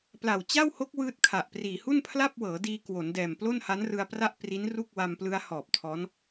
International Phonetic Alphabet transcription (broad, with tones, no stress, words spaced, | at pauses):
pla˨˩w t͡ɕa˥˩who˦˥k̚ wɯː˥˩t̚kʰa˨˩ʔpriː˨˩ hu˥˩npʰla˥˩p̚wɤː˩˦diː˧ kwo˩˦ndɛː˨˩m plo˥˩nha˦˥nrɯ˧a̯pra˥˩ʔ pri˦˥nru˥˩k̚ wa˧mplɯ˦˥a̯ hɔː˨˩p̚tʰɔː˦˥n